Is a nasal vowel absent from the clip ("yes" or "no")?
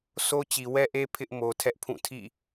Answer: no